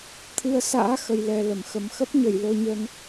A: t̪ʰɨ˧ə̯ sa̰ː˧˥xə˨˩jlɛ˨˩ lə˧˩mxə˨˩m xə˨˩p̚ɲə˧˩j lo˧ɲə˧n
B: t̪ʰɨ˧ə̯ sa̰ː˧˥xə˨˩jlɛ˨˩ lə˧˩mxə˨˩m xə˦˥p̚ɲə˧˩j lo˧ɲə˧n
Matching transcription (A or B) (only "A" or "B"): B